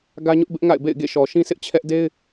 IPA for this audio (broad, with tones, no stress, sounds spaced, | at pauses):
ɡ ä˦ ɲ ʊ˦ ʔ b ɪ˦ ʔ ŋ a̰˦˨ ɪ̯ b ḛ˦˨ ɪ̯ ɡ ḛ˦˨ ʃ ɔ˨ ʃ ĩ˦ s ɪ˦ ʔ t͡ɕʰ ɛ˦ ʔ d e˦ ɪ̯